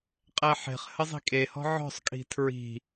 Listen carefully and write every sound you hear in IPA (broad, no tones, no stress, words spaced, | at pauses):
qʼɛħe̤χ həzˤi̤kʼehɔ̤ ʕɔ̤sˤkʼi̤ tʰɹi̤